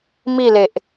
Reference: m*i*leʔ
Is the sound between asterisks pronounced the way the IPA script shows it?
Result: yes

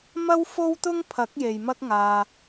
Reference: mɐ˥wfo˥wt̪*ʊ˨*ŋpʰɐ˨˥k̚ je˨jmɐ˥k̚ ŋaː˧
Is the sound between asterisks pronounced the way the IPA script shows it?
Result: no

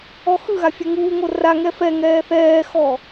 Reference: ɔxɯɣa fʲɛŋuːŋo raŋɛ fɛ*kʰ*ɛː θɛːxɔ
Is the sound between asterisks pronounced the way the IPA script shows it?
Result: no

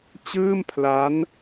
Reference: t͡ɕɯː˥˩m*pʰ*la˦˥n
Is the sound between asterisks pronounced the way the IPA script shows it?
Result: yes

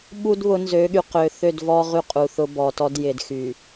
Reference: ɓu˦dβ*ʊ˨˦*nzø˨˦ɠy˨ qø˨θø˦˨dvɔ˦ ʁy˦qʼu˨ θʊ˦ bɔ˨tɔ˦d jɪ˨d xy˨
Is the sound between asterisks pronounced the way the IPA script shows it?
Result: yes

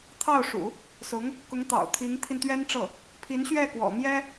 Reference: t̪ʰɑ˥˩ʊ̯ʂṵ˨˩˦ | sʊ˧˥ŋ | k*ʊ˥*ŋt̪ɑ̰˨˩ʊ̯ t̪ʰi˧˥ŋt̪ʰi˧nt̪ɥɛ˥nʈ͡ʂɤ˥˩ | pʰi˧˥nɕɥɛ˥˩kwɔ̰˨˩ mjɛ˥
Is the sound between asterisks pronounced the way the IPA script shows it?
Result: no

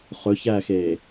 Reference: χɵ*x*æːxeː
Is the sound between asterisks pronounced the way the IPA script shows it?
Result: no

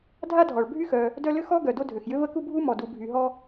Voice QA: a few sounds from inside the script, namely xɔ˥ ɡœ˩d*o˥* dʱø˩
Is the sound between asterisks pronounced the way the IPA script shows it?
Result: yes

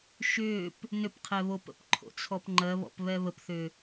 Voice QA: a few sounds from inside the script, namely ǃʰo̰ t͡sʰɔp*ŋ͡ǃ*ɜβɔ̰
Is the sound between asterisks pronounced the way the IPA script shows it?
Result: yes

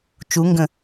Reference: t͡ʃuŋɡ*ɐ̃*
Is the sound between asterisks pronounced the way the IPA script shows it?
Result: no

